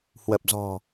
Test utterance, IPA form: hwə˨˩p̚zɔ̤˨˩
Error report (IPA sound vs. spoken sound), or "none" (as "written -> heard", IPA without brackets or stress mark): none